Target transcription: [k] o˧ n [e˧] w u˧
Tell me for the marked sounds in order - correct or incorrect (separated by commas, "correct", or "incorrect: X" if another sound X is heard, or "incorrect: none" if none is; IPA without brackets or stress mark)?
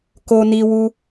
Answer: correct, incorrect: i˧